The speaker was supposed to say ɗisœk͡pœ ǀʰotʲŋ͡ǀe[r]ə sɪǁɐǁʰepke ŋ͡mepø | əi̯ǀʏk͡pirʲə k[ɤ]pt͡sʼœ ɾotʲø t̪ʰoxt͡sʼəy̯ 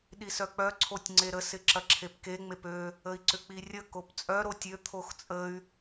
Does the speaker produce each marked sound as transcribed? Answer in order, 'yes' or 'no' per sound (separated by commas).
no, no